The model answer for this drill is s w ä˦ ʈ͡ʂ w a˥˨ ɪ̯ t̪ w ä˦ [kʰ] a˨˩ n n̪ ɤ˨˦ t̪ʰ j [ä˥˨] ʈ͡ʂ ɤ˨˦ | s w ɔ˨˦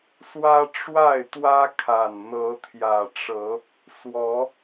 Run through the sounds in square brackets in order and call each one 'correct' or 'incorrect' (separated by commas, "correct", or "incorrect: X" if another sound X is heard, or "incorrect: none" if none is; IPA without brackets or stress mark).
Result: correct, incorrect: ä˨˩